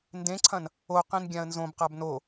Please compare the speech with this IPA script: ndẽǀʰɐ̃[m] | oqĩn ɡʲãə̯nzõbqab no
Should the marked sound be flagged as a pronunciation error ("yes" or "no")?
yes